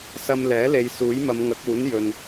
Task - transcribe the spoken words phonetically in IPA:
sɐ˧mlɛː˨˥le˨˧j suː˨˥jmɐ˨˧mŋɐ˨˥k̚uː˨˥n jɵ˨n

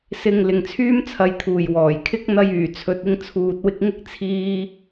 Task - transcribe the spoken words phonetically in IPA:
sɪ˧ŋ lɪ˨ŋt͡sʰyː˥mt͡sʰɐ˨˧jt̪ʰuː˨˩j wɔː˨˩jkʰɪ˥k̚ n̪ɐ˥jyː˨˩t͡sʰɵ˧t̚ ɪ˧ŋt͡sʰuː˨t̚wɪ˧k̚ŋɪ˥k̚ t͡sʰiː˥

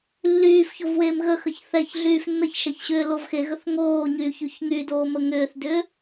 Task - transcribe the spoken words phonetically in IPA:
lːyːfçovweːm ɣəxəç θɛçɮyːf nːəçʃɛçɕʏːlov xeɣəθ ŋoːɲyːçyç ŋydoːmə ŋʏːθdʏː

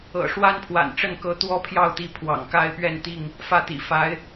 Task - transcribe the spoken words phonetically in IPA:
ɤ̰˨˩ʂwa˦npʰwa̰˨˩nʈ͡ʂə˥˨n kɤ˨˦t̪wɔ˦pʰjɑ˥˨ʊ̯t̪i˨˦ pʰwɑ̰˨˩ŋka˦ɪ̯ pɥɛ˥˨nt̪i˥˨ŋ | fä˥˨t̪ḭ˨˩ fa˨˦ɪ̯

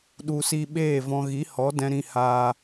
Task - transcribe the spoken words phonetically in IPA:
ɗu˨si˧ ɓeː˦˨ vɔ̃˧ ɣi˨˦hɔ˨˦dɛ̃˧ ɾĩ˦haː˦

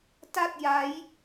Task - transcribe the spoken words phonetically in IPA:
ta˥˩t̚ja˦˥j

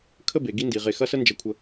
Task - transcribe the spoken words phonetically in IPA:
kʰə˥˧ be˩˧ɡi˥ndi˩˧ ʁe˧˩xɐ˥sə˥ nd͡ʒɐ˧kʷʰə˧

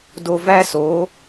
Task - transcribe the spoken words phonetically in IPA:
do˧væ˦so˨˦

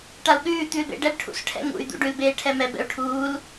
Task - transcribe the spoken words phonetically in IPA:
ʈau̯ɠʉː t̪ʉːlbḛ ɖɛbʈʰṵs ʈʰɛ̰ŋṵy̯ d̪ṵɖʉl beːʈʰɛmɛ bɛ̰u̯ʈʰuːl

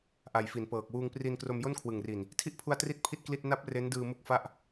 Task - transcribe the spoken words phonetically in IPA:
ʔa˨˩jfi˩˦npɤː˨˩k̚ wuː˧ŋpri˧n kro˧mjo˥˩nkʰwɯ˨˩ŋri˨˩n | tʰi˥˩ʔpʰu˧a̯tri˦˥t̚ pʰi˥˩t̚kli˥˩t̚ na˦˥p̚ re˦˥ndɯː˧mu˦˥k̚fa˦˥ʔ

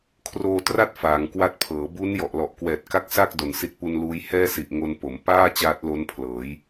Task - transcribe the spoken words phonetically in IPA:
kʰroː˧tra˥˩t̚ faː˩˦ŋkwa˥˩t̚pʰɤː˩˦ bu˦˥n jɔ˨˩ʔlɔ˨˩ʔkwɛː˨˩t̚ka˥˩k̚ sa˥˩k̚ do˨˩nsi˦˥t̚pu˧nluː˦˥j hɛː˥˩si˨˩ʔŋo˧n po˩˦m paː˥˩ t͡ɕaː˦˥t̚lo˦˥npʰlɤː˩˦j

